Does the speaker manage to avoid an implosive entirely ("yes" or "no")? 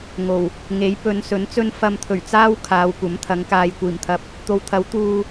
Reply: yes